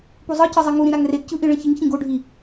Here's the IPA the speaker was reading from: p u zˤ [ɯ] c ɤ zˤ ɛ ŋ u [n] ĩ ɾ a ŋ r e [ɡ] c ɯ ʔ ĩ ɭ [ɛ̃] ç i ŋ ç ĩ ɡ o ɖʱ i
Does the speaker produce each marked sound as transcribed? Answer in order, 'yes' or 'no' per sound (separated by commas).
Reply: no, no, yes, yes